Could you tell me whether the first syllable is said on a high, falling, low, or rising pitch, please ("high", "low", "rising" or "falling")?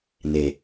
low